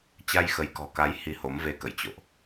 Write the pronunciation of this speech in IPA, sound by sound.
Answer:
t͡ɕ a˧ j x ə˨˦ j k ɔ̤˨˩ k a˨˦ j h i˧ h o˨˦ m v e˧ k ə̰˧˨ j t͡ɕ o̰˧˨ ʔ

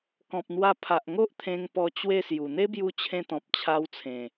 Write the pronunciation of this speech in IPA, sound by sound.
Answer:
k ɔ̃˨ p̚ n̪ w a˧ pʰ a˨ ʔ ŋ o˦ ʔ t̪ʰ ẽ˧ ŋ p ɔ˧ t͡ɕ w e˥˧ s j u˨˩ n̪ e˦ b j u˧ t͡ɕʰ ẽ˧ t̪ ɔ̃˨ p̚ t͡ɕʰ a˧ w t͡sʰ ẽ˨˩

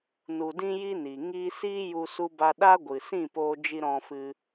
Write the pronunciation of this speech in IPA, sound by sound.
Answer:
n u˨ d ĩ˧ j i˧ n i˨ ŋ iː˧ s iː˦ j u˧ s u˦ b a˦ ɗ a˦ ɡʷ ɨ˨ s ĩ˦˨ p oː˧ d͡ʒ i˧ ɾ ɔ̃˧ f ɨ˧

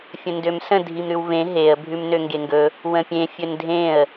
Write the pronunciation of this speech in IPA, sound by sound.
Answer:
fʲ ə̃ n d ø m s ə̃ dʱ i m ɾ ʉ w v ẽ ɦ e ə̯ bʱ ʉ m n ø ŋ ɡ e ŋ ɡ ɵ | w ə̃ pʲ ẽ fʲ ɵ n dʱ ẽ ə̯

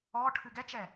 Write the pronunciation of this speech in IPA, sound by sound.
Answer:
ɔ ʈʰ ɨ ɡ ɛ t͡ʃ ɛ

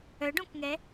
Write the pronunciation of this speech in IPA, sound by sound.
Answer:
œ ɖ õ k ŋ ɛ

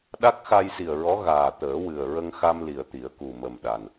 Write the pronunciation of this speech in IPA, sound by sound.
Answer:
ɗ a˦˥ k̚ x a˧ j s i˨˩ ə̯ ɹ ɔ˧˥ ɣ aː˨˩ t̪ əː˨˩˦ w ɨ˨˩ ə̯ ɹ ə˧ ŋ x a˧ m l i˨˩ ə̯ t̪ i˨˩˦ ə̯ k u˨˩ m ə˨˩ m ɗ a˨˩ n

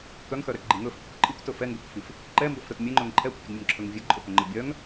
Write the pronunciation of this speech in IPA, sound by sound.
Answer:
k œ ŋ x œ ɾ ɛ k ɡ͡ǃ i ŋ ɵ f pʲ ə kʷ ǃʼ i kʷ t ɵ f ɛ ŋ ɡ ɵ k f i f | ǃ ɛ m b ɵ f ɾ ɵ t mʲ ɛ ŋ͡ǃ ɵ ŋ ǃʰ ɛ kʷ pʲ ə ɡ mʲ ə ŋ ǁʰ ɵ ŋ vʲ ɛ ɡ ǃʼ ɵ k œ ŋ͡ǃ ə bʲ œ ŋ

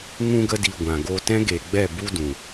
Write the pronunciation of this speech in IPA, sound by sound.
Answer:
ŋ ũ˧ ɡ ə˧ d i˨ ɡʷ ã˨ ɡ o˧ t ɛ̃˦ ɡ e˨ ɡ͡b ɛ˦˨ b u˦ d ũ˨

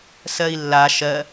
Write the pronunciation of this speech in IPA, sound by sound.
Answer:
s ɜ i̯ lː a ʃ ɜ

